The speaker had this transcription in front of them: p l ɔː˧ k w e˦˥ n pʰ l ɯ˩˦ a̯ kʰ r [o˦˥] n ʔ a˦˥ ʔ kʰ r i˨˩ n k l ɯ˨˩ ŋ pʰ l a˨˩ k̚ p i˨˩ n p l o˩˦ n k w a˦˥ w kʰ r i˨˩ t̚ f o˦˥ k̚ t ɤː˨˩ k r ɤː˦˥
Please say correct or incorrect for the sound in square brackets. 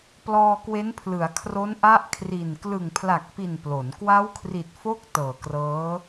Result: correct